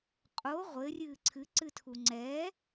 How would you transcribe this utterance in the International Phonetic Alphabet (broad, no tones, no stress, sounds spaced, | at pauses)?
qʼ o ʁʷ ɘ rʲ ɨː ǀʰ ɨ ǀ ɨ tʰ u ŋ͡ǀ ɛ